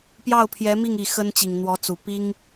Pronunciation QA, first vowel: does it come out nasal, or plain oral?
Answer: oral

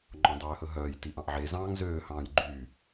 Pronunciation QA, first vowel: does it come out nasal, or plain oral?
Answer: nasal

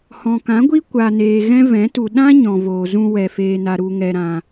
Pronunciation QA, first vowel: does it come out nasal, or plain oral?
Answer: nasal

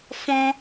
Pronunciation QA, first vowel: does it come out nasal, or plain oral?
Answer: nasal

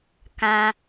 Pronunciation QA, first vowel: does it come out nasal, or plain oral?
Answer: nasal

